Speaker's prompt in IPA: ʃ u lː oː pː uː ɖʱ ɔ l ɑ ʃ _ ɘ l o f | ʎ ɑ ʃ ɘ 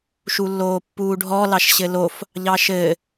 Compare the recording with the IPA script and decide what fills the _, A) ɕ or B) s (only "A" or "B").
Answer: A